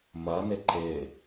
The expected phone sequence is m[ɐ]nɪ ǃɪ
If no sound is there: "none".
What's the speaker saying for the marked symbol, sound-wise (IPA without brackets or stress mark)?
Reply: ɐ